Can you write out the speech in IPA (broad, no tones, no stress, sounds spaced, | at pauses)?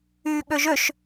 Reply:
yː ɠ ø ʒ ø ʃ